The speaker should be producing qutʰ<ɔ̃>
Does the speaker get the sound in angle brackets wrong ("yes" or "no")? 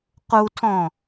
no